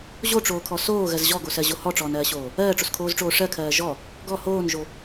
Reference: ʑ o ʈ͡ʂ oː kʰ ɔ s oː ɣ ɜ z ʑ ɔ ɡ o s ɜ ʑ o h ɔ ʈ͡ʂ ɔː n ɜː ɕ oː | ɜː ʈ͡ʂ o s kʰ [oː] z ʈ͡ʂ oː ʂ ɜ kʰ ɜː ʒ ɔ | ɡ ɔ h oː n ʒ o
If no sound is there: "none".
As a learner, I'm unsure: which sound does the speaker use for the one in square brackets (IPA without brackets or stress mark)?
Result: oː